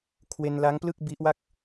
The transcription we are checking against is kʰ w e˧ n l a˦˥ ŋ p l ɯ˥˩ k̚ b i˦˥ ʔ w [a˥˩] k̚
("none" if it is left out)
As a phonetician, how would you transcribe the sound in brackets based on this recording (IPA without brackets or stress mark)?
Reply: a˥˩